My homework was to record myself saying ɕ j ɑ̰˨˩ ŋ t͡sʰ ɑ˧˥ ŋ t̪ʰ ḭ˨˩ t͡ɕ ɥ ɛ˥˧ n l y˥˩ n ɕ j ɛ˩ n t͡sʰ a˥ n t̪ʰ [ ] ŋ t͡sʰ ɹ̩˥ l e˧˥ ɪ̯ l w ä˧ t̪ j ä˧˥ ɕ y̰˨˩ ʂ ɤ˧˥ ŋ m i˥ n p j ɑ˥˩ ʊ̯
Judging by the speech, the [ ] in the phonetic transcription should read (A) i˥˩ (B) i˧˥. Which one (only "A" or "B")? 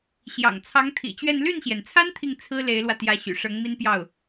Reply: A